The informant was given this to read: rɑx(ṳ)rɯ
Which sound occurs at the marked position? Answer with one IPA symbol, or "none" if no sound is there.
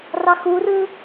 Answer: u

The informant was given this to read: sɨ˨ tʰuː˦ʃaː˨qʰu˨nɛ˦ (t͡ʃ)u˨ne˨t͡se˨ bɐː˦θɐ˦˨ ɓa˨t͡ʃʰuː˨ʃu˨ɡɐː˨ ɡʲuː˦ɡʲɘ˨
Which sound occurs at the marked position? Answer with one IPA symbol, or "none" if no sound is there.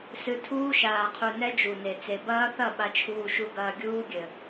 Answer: d͡ʒ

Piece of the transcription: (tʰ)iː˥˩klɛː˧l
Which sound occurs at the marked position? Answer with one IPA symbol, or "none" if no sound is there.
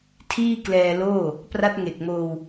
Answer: tʰ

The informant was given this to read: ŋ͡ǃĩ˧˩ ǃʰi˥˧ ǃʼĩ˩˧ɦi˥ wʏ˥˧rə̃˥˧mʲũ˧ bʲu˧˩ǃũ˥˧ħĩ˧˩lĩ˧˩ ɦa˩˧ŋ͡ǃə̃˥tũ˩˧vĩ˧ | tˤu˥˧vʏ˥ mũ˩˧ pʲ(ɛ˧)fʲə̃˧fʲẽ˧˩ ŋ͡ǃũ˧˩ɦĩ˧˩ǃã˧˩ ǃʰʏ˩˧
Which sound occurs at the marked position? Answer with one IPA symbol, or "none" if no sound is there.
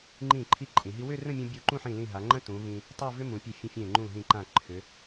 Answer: e˧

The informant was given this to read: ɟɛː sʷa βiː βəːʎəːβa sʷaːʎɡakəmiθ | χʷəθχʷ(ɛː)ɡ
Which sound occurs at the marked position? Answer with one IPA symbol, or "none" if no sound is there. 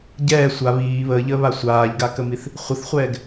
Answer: ɛː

